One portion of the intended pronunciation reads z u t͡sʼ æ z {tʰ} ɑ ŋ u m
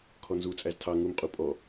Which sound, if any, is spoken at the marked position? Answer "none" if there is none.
tʰ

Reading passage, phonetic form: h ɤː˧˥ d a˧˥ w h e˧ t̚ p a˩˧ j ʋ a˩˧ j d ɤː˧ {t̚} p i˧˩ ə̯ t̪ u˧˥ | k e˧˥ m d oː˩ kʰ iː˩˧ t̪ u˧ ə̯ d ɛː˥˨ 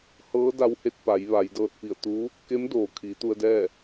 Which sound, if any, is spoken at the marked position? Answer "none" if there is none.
t̚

